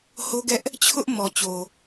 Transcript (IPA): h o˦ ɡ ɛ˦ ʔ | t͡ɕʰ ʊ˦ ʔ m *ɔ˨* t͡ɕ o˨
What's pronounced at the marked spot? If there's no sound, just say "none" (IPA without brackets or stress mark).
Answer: ɔ˨